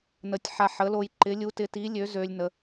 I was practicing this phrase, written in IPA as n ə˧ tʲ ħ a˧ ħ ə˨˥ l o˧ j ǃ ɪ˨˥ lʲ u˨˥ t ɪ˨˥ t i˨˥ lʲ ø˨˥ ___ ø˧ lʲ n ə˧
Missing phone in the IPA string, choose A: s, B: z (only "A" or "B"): B